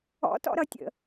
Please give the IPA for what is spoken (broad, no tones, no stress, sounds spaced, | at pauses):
ɔ̰ t ɔ̰ ɾ ʌ tʲ ə̰